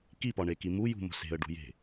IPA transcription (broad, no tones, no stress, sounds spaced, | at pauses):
k i p ɒ ɳ e k i m u j ṳ m o̤ s e̤ ə̯ ɖ ṳ j e̤